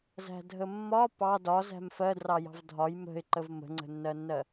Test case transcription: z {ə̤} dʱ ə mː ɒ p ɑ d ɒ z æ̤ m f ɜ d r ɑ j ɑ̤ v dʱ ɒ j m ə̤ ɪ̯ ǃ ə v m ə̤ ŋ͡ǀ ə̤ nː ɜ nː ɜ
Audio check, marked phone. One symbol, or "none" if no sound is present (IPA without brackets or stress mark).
æ̤